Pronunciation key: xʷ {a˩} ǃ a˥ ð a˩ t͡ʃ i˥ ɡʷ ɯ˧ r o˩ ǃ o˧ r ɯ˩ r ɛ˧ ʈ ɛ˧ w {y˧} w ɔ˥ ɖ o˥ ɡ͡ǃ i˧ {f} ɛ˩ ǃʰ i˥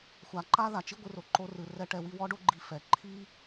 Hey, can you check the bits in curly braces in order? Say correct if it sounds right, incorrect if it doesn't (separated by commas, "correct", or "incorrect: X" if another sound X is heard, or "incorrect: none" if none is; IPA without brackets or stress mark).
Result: correct, incorrect: i˧, correct